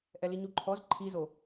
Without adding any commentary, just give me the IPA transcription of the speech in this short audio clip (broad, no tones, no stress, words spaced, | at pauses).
ʔɛliɲuǃʰɔz ǃʰizo